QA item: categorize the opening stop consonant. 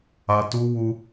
plain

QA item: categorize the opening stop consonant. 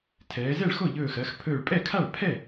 aspirated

